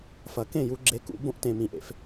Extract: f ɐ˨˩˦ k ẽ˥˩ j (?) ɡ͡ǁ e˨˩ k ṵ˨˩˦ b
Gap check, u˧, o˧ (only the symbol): u˧